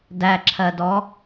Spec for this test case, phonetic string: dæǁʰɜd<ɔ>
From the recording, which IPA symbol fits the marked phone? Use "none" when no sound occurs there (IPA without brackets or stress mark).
ɔ